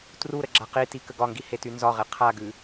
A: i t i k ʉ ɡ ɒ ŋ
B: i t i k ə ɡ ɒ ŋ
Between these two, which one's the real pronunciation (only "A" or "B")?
B